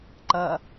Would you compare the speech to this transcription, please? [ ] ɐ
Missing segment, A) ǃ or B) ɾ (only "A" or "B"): A